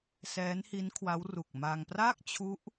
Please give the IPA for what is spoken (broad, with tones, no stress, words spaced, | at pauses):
sɛː˦˥nhi˦˥n kʰwa˦˥wru˨˩k̚ ma˧ŋ pra˥˩k̚t͡ɕʰu˦˥ʔ